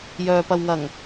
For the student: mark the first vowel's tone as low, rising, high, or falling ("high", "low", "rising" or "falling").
low